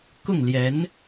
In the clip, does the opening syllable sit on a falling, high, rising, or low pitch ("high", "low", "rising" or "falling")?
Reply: falling